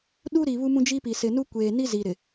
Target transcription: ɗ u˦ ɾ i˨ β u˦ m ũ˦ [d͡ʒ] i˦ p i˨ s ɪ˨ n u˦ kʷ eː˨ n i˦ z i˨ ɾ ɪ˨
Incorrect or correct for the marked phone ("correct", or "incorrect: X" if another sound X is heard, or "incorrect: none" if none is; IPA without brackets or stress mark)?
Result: correct